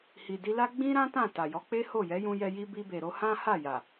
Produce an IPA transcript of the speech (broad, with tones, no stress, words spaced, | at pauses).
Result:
hi˨di˧la˦ ɡ͡bĩ˦ɾã˦ tã˦˨ta˨jɔ˨˦k͡pe˦ ho˦˨ jɛ˨˦jũ˧jɛ˧ ji˧ bi˧be˨ɾo˧ hã˦ha˦˨ja˨